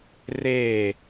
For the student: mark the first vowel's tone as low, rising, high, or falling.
falling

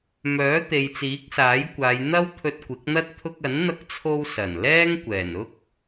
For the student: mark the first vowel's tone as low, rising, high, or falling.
rising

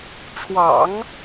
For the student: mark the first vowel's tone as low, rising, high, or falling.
low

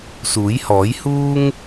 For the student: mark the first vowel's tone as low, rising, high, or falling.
rising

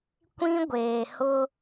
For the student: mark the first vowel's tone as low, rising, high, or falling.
high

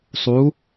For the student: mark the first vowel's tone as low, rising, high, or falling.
rising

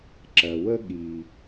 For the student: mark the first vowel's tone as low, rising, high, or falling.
low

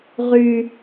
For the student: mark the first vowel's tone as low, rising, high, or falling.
high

